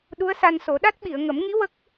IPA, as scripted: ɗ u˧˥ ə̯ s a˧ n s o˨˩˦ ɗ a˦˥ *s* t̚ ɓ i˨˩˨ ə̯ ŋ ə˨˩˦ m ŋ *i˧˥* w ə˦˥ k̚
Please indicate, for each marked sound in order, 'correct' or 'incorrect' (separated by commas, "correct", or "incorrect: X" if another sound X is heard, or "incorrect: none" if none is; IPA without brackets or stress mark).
incorrect: none, correct